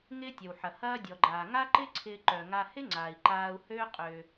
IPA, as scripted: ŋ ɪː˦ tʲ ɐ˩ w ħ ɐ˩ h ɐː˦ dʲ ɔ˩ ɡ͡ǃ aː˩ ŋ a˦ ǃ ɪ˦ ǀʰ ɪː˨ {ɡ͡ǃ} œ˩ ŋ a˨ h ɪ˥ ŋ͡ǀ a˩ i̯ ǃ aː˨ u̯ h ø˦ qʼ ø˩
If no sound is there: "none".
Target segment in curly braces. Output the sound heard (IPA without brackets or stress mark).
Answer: ǃ